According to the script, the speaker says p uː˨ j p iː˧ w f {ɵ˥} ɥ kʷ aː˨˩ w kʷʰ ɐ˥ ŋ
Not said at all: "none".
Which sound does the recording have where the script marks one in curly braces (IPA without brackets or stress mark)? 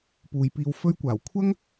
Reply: ɵ˥